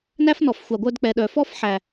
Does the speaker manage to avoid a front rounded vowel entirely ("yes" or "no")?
no